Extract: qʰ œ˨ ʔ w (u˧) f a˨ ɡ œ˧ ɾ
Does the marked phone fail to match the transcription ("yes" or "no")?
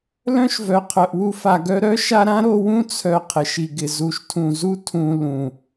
no